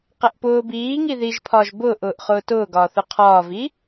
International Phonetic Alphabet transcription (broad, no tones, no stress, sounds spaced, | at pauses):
q ɛ ʔ p ʊː b iː ŋ i ð i ʒ pʰ ɒː ʒ b ʊː ʔ ʊː ʔ χ ʊː t ʊː ɡ ɒː θ ʊ qʰ ɒː v i